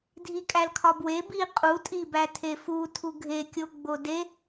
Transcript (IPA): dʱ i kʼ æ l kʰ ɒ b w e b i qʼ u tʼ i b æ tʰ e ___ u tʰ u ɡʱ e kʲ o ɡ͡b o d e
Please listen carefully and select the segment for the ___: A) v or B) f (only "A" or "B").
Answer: B